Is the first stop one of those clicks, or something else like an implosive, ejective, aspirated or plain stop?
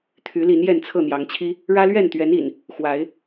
aspirated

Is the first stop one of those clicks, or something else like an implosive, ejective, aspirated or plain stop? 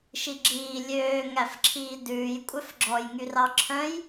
click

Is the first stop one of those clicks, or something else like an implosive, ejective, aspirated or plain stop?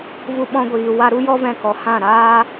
implosive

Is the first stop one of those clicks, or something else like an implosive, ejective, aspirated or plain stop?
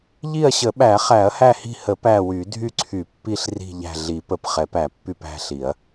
implosive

